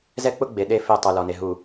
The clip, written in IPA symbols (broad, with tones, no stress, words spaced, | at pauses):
zɛ˦k͡pʊ˦ɡ͡be˨ ɗe˦fe˦˨ tˤu˨lɔ˨ne˨ ɦu˨